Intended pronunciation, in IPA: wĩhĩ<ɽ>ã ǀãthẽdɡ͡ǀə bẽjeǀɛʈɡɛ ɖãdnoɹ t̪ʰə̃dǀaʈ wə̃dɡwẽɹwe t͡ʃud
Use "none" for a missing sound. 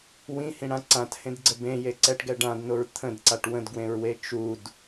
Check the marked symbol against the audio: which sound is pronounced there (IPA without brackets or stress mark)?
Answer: ɽ